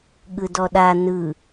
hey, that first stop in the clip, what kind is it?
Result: implosive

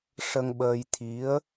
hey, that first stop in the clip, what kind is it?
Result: implosive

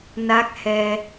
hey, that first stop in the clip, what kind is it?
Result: plain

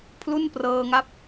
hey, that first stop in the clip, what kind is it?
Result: aspirated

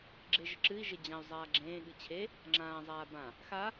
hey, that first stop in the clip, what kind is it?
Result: click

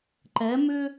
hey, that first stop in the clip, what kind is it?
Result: click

